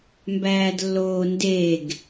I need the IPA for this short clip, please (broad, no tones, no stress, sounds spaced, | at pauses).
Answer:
m b æː d lː oː n d e ɡ